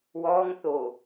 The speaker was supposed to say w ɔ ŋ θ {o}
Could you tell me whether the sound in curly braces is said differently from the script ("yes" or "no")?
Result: no